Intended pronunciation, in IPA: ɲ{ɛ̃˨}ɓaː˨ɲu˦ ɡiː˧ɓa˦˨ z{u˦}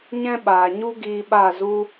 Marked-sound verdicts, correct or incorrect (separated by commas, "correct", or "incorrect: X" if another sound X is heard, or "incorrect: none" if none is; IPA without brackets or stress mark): incorrect: ɛ̃˦, correct